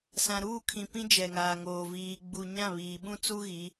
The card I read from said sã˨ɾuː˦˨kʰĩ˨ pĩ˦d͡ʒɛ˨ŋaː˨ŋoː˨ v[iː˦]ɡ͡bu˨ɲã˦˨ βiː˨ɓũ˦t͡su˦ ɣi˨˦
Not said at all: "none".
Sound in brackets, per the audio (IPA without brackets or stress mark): iː˨